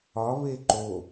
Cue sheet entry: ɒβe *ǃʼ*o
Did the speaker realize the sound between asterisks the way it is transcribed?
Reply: no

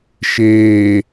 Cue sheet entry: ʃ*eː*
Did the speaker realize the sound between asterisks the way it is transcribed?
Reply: yes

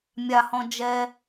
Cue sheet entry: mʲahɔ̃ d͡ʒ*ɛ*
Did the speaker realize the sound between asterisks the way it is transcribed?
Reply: yes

